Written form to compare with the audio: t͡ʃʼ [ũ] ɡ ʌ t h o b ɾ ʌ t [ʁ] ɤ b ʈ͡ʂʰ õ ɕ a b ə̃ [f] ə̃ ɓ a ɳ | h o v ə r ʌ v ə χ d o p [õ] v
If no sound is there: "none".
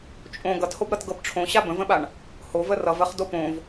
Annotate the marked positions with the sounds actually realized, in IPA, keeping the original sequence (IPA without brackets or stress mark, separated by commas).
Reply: õ, ɡ, v, õ